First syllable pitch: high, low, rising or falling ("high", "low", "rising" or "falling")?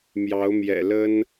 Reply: rising